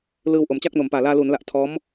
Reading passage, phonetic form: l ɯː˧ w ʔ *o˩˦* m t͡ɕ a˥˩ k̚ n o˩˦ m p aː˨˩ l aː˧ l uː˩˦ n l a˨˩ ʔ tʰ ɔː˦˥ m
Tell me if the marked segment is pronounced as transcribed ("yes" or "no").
yes